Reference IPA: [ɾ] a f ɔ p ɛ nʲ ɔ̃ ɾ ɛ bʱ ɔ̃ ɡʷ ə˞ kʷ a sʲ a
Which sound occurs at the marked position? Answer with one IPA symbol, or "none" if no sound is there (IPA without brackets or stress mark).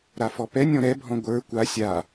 ɾ